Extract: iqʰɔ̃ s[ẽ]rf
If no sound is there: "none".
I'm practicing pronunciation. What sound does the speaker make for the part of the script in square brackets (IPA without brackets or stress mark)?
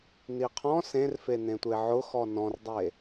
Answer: ẽ